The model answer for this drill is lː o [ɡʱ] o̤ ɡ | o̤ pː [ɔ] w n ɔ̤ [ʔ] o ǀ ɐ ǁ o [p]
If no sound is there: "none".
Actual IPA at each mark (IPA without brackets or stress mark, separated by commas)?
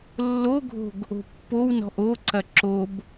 ɡʱ, o, ʔ, b